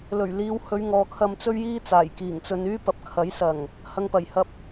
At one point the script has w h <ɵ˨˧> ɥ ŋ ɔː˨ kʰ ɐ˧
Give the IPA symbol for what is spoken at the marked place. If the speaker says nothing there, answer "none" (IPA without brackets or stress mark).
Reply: ɵ˨˧